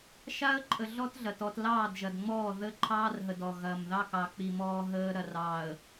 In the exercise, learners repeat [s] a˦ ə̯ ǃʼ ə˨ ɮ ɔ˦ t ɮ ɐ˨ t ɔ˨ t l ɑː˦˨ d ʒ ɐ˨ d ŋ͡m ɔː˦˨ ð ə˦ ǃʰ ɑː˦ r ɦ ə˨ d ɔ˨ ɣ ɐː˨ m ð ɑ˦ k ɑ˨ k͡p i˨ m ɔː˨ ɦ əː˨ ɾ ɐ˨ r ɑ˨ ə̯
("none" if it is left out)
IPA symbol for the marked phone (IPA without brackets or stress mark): ʃ